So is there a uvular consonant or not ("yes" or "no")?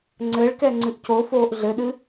no